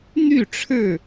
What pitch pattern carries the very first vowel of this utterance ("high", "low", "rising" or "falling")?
falling